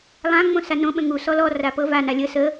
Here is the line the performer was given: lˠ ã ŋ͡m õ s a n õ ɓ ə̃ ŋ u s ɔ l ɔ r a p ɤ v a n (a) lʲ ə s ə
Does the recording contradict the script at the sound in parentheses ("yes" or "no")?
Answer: no